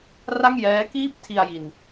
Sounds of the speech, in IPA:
r a˥˩ ŋ j ɛː˦˥ k iː˥˩ p̚ tʰ i˧ a̯ j i˧ n

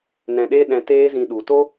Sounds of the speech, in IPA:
n ɛ̃˧ ɗ e˦ ɗ ɛ̃˧ t eː˦ z ĩ˧ ɗ u˨ t o˦

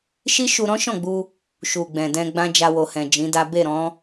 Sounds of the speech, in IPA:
ʃ i˦ ʃ u˧ ɾ ɔ̃˦ ʃ ɔ̃˦˨ ɡ͡b u˧ | ʃ u˨ ɡ͡b ɛ̃˨ d ɛ̃˧ ɡ͡b ã˦ d͡ʒ a˧ w o˨ h ɛ̃˨ d͡ʒ ĩ˨˦ d a˦ b e˦˨ ɾ ɔ̃˨˦

